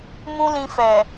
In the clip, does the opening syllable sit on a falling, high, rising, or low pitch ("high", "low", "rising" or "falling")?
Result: high